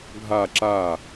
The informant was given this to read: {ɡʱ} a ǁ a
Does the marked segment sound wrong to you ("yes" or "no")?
no